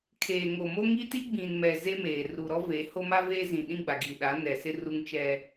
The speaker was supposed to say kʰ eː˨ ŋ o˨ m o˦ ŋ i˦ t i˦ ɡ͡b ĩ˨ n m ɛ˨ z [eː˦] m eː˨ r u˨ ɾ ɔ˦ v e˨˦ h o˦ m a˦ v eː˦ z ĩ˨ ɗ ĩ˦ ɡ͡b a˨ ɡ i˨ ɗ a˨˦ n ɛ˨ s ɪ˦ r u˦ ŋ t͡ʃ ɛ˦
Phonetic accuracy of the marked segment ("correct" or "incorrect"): incorrect